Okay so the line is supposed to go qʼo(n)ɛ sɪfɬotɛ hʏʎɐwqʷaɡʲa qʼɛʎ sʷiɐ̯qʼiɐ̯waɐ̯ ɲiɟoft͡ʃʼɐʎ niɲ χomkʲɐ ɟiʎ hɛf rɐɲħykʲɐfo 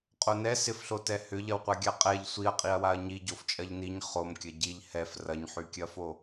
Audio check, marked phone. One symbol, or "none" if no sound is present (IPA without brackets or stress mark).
n